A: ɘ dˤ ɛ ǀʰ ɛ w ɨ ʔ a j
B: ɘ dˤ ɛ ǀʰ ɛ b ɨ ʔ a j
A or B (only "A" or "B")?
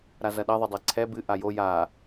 B